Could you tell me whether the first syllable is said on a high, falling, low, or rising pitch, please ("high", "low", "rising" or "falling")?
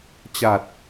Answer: low